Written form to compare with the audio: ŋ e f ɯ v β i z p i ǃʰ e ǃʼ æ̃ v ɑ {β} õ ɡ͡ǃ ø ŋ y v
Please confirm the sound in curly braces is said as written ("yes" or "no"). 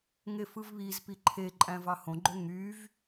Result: no